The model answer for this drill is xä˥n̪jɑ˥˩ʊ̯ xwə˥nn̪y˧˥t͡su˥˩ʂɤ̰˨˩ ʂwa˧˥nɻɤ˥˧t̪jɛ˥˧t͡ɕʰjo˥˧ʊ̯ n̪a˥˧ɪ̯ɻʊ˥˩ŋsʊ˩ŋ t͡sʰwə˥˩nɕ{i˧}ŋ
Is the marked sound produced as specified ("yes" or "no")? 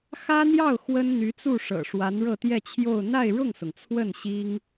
no